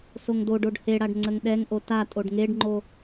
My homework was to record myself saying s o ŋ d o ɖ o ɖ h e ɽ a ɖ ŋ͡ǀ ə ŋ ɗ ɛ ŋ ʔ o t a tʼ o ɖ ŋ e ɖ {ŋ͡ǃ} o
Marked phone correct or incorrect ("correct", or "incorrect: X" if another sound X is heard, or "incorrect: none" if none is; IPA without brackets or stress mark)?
correct